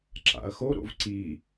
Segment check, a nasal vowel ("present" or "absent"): absent